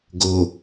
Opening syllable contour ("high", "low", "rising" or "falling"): low